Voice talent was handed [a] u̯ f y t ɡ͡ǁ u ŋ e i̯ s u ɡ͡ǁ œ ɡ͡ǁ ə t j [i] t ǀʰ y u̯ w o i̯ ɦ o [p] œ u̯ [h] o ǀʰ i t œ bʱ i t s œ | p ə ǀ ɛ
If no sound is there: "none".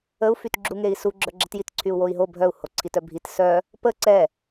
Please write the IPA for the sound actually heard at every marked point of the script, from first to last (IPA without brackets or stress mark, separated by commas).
ə, i, bʱ, h